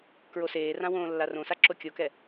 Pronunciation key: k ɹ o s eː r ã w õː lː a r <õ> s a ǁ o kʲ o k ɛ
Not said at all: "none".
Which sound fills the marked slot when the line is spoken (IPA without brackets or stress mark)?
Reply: õ